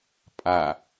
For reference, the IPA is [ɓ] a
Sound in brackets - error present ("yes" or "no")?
yes